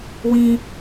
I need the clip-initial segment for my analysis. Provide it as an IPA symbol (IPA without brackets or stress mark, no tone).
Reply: w